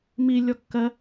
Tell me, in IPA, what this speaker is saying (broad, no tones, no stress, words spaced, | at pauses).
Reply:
mi lʲɔkːɜ